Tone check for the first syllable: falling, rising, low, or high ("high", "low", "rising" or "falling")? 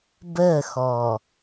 falling